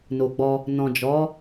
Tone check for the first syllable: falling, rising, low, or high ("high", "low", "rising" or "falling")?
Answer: low